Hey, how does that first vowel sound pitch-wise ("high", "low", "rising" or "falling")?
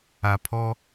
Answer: low